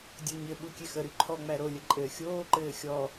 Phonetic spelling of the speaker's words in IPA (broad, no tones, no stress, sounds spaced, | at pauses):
dʲ o ɲ ɘ ɓ u kʲ e x ə ɾ y ǃʰ ɔ ŋ͡m æ ɾ o lʲ ə ǃʼ ɘː xʲ oː ǃ ɘː xʲ ɔ